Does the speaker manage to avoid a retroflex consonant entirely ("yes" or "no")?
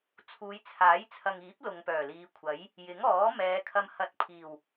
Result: yes